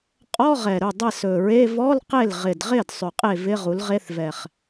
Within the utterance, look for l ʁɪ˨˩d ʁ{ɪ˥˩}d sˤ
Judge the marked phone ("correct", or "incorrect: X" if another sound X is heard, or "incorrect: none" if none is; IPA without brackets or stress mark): correct